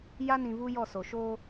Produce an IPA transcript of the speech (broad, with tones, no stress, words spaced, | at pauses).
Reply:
ja˦nĩ˨ vu˦jɔ˦˨so˨ ʃoː˦